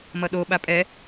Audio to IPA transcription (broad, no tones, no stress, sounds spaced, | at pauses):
m ʌ ɗ o ɓ a pʼ ɛ